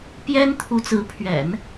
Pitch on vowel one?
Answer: high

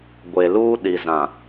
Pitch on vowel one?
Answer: low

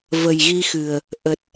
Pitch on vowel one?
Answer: low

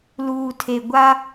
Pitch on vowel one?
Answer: low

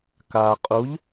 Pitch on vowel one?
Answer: low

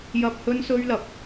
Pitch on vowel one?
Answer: high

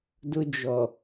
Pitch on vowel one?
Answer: high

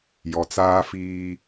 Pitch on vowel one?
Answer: low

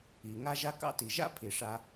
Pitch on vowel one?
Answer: low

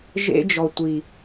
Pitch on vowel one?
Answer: high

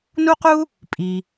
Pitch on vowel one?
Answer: high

